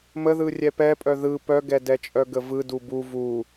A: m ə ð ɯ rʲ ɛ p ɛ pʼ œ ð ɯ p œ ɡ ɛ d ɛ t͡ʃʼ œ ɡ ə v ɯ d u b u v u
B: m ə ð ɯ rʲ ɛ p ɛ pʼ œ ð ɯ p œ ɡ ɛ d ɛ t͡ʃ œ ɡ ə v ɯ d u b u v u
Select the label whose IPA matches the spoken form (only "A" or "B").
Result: A